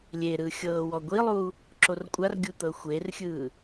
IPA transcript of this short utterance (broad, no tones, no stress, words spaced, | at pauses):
lʲeɾɯ xʲɤːwɔɡʷilˠuː | ǁorkʷʼarɡʲu t̪ɤxʷerxʲɯː